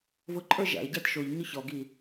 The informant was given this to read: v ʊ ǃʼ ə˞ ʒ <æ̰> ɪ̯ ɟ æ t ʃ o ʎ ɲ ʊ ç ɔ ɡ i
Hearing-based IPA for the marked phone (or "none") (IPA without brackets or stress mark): æ̰